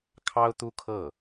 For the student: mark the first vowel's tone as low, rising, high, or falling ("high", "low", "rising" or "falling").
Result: high